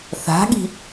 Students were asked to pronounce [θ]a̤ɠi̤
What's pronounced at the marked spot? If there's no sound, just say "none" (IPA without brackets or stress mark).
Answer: θ